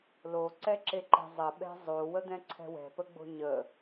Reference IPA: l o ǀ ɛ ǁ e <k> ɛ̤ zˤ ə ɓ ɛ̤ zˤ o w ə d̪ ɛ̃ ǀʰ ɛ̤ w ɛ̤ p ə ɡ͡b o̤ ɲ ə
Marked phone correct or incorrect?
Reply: incorrect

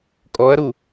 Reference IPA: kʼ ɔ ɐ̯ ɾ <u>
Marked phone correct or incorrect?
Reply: correct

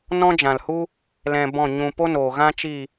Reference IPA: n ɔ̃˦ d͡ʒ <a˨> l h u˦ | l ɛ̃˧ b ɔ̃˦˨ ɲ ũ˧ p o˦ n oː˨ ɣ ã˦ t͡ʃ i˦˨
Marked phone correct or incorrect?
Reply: incorrect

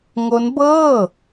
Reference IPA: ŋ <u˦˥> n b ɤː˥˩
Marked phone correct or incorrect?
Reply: incorrect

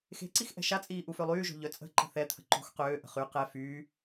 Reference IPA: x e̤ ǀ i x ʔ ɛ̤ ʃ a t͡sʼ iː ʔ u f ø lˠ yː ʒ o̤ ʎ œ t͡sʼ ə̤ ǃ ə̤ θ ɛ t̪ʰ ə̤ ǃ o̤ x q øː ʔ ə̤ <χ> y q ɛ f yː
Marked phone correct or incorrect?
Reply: correct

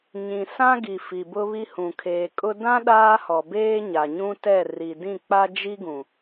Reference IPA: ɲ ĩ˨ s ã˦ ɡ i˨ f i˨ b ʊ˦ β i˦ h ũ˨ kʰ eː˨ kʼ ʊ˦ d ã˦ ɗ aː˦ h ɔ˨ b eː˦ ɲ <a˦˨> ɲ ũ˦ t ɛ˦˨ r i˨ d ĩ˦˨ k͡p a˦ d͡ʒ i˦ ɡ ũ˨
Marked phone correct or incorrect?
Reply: incorrect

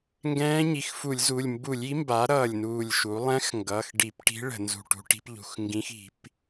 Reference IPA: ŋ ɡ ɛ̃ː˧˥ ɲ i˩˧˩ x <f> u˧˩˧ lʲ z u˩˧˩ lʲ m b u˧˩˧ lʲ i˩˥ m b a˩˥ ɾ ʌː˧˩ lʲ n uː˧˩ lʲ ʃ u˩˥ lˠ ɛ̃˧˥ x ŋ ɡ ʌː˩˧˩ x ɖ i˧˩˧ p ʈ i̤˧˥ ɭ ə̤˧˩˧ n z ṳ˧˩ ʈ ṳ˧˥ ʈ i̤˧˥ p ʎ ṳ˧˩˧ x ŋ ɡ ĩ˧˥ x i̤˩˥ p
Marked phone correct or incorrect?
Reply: correct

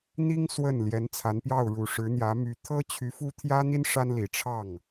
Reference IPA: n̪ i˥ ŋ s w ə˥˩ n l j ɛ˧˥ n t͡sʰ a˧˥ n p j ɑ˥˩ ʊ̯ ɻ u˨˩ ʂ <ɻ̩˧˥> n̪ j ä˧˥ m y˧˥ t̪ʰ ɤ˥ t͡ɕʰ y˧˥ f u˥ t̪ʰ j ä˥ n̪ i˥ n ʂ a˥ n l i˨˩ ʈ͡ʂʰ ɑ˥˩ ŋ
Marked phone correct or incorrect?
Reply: correct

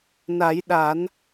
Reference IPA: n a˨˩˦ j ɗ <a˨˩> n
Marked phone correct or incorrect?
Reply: incorrect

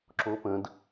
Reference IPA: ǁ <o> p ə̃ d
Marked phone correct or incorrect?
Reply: correct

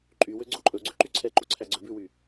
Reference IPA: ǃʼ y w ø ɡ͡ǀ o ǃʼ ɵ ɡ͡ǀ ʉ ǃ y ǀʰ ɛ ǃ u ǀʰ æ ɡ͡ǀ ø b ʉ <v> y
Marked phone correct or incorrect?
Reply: incorrect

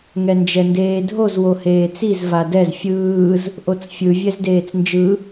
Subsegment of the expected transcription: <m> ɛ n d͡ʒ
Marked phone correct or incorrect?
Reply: incorrect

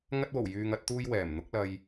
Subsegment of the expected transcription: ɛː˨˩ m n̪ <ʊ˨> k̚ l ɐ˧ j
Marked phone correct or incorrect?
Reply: incorrect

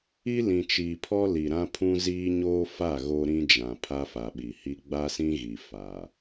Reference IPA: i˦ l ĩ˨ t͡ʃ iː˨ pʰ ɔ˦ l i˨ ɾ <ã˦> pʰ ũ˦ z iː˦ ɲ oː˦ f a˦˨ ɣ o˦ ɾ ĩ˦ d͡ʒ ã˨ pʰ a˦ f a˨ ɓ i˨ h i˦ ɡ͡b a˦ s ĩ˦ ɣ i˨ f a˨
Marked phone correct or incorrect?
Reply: correct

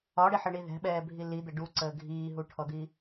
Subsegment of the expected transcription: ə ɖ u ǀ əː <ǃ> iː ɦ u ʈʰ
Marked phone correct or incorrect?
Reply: incorrect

